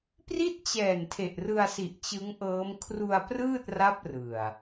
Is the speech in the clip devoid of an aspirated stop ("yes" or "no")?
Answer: no